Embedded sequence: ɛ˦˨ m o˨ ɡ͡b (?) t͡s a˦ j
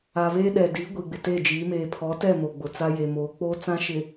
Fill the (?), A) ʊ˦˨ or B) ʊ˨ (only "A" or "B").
B